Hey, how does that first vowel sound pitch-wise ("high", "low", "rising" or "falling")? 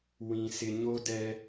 low